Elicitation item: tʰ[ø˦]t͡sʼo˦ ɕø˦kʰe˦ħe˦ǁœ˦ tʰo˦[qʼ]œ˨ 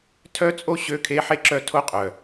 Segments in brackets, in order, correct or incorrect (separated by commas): incorrect, correct